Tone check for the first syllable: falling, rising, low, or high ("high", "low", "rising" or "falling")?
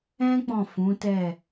high